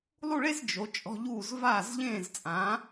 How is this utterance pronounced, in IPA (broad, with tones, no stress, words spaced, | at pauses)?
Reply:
lˠu˥˧ɭe˥z d͡ʒo˩˧ t͡ʃʼɔ̤˧ ʎuː˧˩z vaː˧˩zʎẽː˧˩z t͡sʼã˩˧